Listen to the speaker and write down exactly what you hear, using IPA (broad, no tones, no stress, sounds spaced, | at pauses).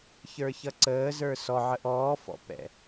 ç ə˞ ç ʌ ǀ əː z ə˞ s ɔ ʕ ə ʔ ɔː f ɔ̰ p ɛ̰